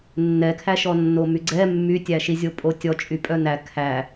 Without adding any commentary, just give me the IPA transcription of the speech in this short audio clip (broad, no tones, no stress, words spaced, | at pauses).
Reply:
nːɛkʰæʃɔnːo myɡ͡ǀɛ mːytʲæʃizʲo pʼotʲɔt͡ʃʼy pʼœnæ kʰæ